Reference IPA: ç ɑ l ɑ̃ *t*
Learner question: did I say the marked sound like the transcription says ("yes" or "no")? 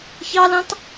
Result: yes